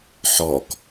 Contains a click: no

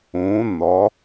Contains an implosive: no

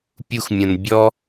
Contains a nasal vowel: yes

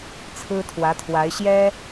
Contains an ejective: no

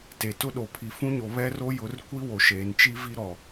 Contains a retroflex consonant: no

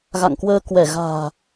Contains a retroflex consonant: no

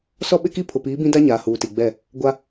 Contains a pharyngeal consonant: no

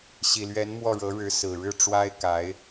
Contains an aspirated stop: no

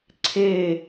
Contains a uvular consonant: no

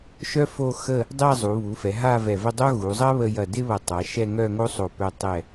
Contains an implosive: no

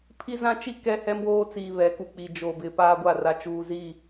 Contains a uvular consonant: no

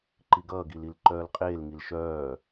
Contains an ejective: yes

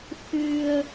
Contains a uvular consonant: no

